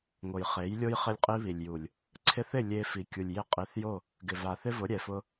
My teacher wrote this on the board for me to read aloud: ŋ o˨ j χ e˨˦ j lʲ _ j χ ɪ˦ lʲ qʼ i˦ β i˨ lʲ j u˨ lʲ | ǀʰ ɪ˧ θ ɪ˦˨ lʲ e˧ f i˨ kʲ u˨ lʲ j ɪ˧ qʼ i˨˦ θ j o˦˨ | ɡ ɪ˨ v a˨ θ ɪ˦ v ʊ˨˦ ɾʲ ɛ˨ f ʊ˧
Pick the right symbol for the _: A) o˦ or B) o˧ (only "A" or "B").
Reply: A